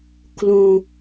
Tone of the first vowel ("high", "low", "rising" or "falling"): low